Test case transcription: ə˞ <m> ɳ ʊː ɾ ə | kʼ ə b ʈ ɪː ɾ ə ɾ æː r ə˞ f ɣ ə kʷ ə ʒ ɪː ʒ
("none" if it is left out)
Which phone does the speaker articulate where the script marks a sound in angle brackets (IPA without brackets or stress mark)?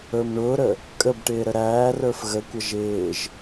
m